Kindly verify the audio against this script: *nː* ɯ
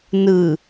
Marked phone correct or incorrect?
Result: incorrect